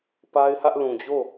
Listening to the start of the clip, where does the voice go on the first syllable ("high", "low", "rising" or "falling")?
high